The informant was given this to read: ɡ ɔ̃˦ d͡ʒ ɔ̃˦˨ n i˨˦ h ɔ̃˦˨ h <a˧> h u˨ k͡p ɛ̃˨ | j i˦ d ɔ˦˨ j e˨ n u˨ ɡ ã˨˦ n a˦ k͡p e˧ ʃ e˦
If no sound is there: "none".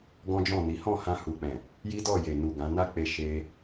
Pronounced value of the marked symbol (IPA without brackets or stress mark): ã˧